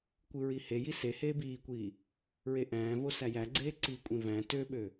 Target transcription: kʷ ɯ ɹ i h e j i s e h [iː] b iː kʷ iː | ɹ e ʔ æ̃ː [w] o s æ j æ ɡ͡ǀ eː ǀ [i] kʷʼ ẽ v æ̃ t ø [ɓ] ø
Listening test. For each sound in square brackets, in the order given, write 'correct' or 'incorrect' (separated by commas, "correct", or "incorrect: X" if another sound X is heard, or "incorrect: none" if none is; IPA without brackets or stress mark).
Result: incorrect: eː, incorrect: v, correct, correct